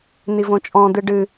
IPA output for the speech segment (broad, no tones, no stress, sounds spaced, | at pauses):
n̪ i v õ t͡ʃʼ ɔ̃ d̪ ɨ ɖ ɨ